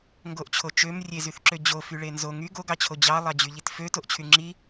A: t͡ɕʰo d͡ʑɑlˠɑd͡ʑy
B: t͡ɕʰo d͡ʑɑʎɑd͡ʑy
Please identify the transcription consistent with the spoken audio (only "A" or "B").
A